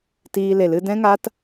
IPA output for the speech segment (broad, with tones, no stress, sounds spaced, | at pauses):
t iː˧ l e˨ l ɨ˧ d ɛ̃˦ ŋ a˦ t